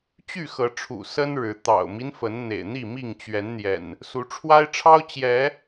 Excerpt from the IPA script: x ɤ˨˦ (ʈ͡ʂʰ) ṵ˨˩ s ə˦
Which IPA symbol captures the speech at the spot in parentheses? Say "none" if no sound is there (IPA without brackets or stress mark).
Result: ʈ͡ʂʰ